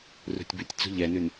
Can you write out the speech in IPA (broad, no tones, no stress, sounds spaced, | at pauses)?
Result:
r ṳ tʲ b ʉ tʲ t͡s ṳ ʎ ɛ n ʉ n